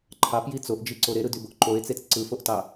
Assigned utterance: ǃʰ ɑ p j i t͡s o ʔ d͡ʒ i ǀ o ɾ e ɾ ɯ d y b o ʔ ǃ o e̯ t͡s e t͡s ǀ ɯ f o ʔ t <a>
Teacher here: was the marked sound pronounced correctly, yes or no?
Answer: no